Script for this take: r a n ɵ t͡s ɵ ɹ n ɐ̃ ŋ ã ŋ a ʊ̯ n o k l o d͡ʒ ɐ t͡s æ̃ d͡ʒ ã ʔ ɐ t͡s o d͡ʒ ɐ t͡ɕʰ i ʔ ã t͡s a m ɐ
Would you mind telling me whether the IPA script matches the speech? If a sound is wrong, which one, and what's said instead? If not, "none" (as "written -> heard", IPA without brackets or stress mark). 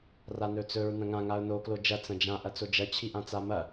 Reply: æ̃ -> ɐ̃